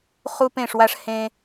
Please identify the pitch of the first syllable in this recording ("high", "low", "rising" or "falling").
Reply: high